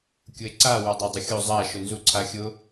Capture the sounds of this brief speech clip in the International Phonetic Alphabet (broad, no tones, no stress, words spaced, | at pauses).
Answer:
kʲʊe̯ǀa wadˤadˤʊxʲo zˤa ʃʊnzuǀʰaxʲʊ